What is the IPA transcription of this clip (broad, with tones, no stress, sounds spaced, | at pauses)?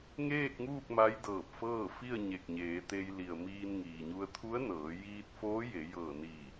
ŋ eː˥˨ k̚ ŋ uː˥˨ k̚ m a˧˥ j d ɤː˧˩ p̚ f ɤː˥˨ f i˥˨ ə̯ ɲ e˧˩ k̚ ɲ eː˩˧ t̪ e˧ j l i˩ ə̯ m iː˧ n ŋ iː˩ ɲ u˧ ə̯ t̪ʰ u˧˥ ə̯ n ɤː˩˧ j iː˧ t̚ f oː˧˥ j e˩˧ j ɤː˧˩ n iː˧˩